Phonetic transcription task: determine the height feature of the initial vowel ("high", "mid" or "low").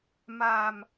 low